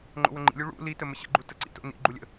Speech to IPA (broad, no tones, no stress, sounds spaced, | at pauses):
ŋ͡ǃ o̰ w ə ŋ͡ǃ ḭ lʲ u ɭ ṵ l i t ə m ə ɕ ə̰ ɡ͡ǃ u t ə ǀ ḭ t o̰ n ḭ ɡ͡ǃ u lʲ ə̰